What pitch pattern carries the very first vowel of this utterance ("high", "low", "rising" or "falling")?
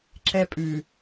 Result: high